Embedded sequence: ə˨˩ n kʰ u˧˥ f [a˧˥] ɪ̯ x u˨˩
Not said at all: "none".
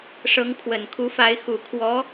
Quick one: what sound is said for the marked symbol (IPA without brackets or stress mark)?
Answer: a˧˥